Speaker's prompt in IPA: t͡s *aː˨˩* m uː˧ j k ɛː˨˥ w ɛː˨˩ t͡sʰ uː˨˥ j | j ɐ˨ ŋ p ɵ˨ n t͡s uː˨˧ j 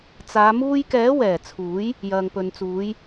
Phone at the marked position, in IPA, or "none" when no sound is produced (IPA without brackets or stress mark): aː˨˧